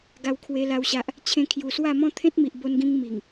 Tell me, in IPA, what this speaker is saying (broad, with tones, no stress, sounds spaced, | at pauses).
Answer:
ɡ a˧ w kʰ w e˧ l a˦ w ɕ a˦ ʔ | t͡ɕʰ ẽ˧ kʰ j u˨˩ s w a˥˧ m ɔ̃˦ t̪ʰ ẽ˦ t̚ m i˨ ʔ b o˧ n ɡ ĩ˧ ŋ m i˨˩ ŋ